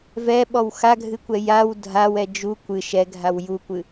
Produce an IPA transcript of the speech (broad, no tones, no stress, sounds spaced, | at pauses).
v ɛ ɓ ɔ w x a ɡʱ ɨ kʷ ɛ j a w dʱ a w ɛ d͡ʒ u kʷ ɨ ʃ ɛ ɡʱ a w j u kʷ ɨ